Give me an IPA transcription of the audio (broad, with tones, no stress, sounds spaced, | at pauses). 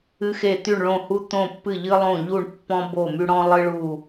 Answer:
ɨ˧ x e˧˩ t̪ y˧˩ ɳ ɭ õ˧˩ h u˧ t̪ õ˧˩ pː ɨ˧˩ ʎ ɨ˧ lˠ õ˧˩ ʎ u˧˩ ɳ pː ɔ̃˧ b o˧˩ m y˧ ɽ ɔ̃˧ lˠ ɨ˧ ɭ u˧˩